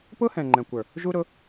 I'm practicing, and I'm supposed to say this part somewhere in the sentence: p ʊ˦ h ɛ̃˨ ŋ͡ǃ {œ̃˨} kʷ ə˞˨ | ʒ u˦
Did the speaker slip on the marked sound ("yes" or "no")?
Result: yes